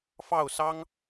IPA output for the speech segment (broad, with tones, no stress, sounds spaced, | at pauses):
f ɑ˥˨ ʊ̯ s ɑ˦ ŋ